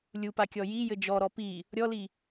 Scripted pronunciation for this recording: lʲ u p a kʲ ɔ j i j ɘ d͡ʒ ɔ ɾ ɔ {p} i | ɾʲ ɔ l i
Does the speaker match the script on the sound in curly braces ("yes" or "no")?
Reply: yes